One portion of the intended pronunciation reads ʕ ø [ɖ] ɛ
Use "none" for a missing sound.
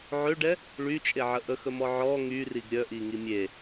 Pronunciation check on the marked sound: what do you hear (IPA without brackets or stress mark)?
ɖ